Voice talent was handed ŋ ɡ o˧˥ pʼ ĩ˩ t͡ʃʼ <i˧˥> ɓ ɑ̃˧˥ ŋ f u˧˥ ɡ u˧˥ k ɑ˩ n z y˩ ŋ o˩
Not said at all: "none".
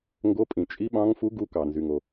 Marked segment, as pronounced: i˧˥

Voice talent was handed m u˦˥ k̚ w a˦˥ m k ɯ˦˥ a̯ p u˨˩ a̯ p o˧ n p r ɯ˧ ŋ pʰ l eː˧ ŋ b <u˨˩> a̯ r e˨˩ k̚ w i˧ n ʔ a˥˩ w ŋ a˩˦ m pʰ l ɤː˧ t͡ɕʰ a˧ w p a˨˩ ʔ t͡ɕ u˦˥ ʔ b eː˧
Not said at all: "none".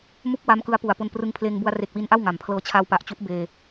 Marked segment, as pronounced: u˧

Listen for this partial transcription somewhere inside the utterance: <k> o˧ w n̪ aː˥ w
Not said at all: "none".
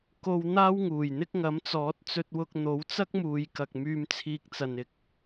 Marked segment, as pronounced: k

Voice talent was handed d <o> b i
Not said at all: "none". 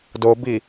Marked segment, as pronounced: o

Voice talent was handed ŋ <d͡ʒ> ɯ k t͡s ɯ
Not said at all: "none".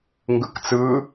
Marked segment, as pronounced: ɡ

